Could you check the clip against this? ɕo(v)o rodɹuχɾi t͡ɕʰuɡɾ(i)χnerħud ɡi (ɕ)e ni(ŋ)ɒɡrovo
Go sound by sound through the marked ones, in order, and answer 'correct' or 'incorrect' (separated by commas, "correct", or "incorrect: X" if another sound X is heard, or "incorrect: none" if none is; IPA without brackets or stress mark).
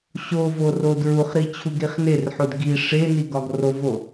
correct, correct, incorrect: ʂ, incorrect: ɡ